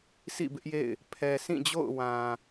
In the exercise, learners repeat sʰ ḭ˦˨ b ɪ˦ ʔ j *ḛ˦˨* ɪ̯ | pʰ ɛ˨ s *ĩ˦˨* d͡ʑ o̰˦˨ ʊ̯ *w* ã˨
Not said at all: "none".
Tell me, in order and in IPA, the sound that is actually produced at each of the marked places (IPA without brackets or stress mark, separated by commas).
ḛ˦˨, ĩ˦˨, w